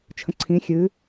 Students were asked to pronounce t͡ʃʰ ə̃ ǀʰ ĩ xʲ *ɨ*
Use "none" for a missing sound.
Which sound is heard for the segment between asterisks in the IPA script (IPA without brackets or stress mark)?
ɨ